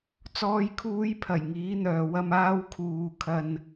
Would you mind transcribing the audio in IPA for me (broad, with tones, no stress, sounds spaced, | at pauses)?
t͡s ɔː˨ j kʰ uː˨˧ j pʰ ɐ˨˩ j ŋ iː˨˥ n̪ œː˨ w ɐ˧ m aː˧ w kʰ uː˨ kʰ ɐ˧ n